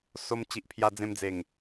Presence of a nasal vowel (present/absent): present